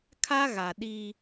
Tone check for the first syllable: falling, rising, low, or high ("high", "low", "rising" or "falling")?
high